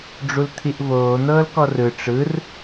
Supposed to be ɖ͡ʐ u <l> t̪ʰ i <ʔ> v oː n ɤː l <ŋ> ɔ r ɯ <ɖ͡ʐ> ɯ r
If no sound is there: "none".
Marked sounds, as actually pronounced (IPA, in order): l, ʔ, k, ʈ͡ʂ

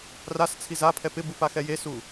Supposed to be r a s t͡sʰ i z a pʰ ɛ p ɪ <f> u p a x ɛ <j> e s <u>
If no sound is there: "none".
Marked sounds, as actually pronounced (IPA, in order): b, j, u

